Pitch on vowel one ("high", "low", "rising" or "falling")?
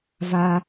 high